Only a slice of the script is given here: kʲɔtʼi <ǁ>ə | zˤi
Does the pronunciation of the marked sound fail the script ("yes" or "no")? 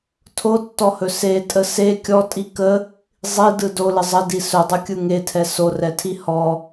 yes